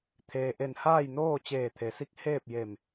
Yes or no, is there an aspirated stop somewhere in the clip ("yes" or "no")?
yes